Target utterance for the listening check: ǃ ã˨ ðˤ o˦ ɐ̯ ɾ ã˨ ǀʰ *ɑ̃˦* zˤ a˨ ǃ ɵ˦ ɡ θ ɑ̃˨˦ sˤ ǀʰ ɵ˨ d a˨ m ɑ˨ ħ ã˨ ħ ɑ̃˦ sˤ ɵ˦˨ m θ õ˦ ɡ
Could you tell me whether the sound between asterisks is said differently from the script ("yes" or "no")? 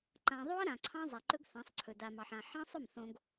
no